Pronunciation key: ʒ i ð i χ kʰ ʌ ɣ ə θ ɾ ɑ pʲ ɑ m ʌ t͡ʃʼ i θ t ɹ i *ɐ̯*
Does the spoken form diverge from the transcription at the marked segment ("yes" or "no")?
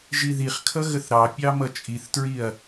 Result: no